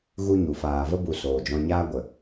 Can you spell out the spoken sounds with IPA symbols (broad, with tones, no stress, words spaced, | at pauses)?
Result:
ɣu˦ɲu˨ faː˨və˦bu˨ soː˨d͡ʒɔ̃˧ɲaː˦ɡʷə˨